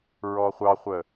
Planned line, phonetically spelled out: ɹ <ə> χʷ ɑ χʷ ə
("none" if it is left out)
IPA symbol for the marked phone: ɔ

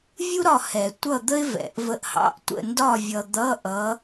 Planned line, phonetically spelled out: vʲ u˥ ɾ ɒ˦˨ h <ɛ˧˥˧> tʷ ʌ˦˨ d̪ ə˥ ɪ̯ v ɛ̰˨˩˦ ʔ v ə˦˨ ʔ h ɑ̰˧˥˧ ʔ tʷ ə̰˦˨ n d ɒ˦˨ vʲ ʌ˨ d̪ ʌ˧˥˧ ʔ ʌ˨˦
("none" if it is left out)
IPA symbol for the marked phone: ɛ˨˩˦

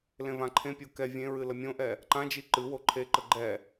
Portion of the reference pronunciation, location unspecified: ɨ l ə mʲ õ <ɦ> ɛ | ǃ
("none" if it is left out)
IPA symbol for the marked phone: ʔ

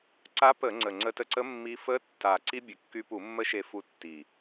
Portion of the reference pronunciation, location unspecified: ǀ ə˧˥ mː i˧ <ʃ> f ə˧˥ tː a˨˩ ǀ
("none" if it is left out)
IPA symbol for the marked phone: none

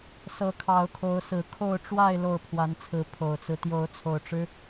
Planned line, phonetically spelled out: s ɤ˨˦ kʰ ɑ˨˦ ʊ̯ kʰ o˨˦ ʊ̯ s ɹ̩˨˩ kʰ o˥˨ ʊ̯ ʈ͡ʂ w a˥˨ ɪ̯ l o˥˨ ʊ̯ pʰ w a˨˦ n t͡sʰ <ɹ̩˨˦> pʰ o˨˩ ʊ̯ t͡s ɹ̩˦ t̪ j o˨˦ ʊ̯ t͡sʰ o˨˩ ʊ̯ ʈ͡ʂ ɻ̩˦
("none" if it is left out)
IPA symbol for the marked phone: ɹ̩˨˦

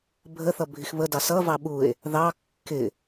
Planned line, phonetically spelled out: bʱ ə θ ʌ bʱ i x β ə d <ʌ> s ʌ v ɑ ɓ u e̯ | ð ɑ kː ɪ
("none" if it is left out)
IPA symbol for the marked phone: ɑ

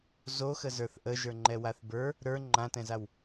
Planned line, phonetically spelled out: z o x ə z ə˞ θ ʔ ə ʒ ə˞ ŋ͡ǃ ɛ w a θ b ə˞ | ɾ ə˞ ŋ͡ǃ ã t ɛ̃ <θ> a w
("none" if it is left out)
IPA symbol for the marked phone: z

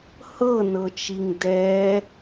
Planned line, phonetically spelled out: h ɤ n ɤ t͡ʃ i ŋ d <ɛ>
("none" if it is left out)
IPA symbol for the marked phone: ɛ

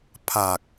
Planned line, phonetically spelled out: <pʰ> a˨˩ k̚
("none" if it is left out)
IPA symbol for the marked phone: pʰ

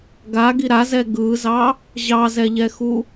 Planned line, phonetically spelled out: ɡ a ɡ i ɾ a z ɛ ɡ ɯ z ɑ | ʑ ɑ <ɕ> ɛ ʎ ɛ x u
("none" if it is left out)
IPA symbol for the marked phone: z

